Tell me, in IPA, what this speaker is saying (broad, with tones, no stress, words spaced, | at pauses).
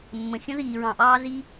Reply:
mːə̃˨xʲə̃˥ ðiː˨ɹɑ̃˨ʔɑː˦ zi˥